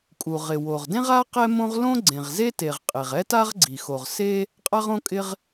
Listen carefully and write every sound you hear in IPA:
kʼ u˩ ʁ ɪ˩ w o˩ ʁ d ẽ˥ ʁ a˥ q ɛ˥ m õ˥ ʁ l õ˥ ɡ͡ǀ ẽ˩ ʁ z e˥ t e˩ ʁ qʼ e˩ ʁ ɛ˥ t a˥ ʁ ɡ͡ǀ i˩ x o˩ ʁ s e˥ | qʼ a˥ ʁ õ˥ kʼ ɪ˥ ʁ

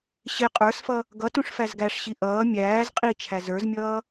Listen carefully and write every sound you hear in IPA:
ɕ ɪ qʼ ə˞ s f ʌ | ɡ ʌ t ũ ʂ f æ z ɡ æ ʂ ɕ i ʔ ʌː mʲ æː z qʼ i t͡ʃʰ æ z ə˞ z mʲ ʌː

